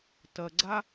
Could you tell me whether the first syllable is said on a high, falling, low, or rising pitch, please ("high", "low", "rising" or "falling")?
low